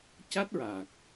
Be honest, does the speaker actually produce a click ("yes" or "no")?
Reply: no